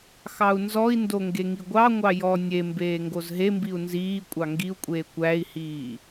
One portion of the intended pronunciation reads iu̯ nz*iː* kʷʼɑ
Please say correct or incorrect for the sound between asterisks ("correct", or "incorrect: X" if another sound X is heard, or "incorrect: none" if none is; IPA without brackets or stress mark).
correct